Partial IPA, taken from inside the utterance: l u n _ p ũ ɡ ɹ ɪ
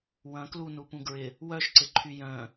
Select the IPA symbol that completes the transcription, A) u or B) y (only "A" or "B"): A